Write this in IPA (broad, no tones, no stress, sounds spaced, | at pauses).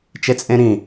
t͡ʃ e t͡sʼ ẽ ɾ ĩ